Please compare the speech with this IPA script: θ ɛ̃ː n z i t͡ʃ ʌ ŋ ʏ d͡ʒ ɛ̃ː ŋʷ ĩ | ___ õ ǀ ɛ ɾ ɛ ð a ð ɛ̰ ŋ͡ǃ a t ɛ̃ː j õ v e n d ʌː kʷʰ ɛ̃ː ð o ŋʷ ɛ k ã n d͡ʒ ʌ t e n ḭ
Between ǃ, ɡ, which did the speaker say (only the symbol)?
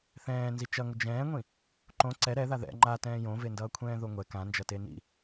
ǃ